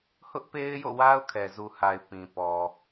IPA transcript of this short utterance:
hʊ˦ʔpe˦ɪ̯jo̰˦˨wa˦ʊ̯ kʰɛ˨zu˨ha˨ɪ̯ pĩ˨pɔ˨

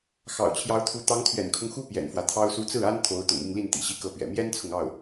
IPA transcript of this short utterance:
xɑ̰˨˩ʊ̯t͡ɕʰjɑ˧˥ʊ̯t̪ʰu˧˥ t̪ɑ˧˥ŋt̪ʰɥɛ̰˨˩nkʰʊ˦ŋxu˥ pjɛ̰˨˩nfwä˦t̪ʰɑ˥ʊ̯su˥ t͡sɹ̩˥˩a˥n t̪ʰo˧˥ʊ̯ t̪ʊ̰˨˩ŋi˥˧ŋli˥˩n t̪ḭ˨˩ɕi˥kɤ˥˩pɥɛ̰˨˩ mjɛ˥nt͡sʰʊ˨ŋɑ˥˩ʊ̯

